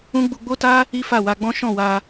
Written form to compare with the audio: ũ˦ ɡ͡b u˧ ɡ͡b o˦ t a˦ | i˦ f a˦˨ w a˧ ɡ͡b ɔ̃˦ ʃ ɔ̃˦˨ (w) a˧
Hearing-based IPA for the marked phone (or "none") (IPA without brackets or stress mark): w